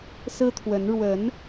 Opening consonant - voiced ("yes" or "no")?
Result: no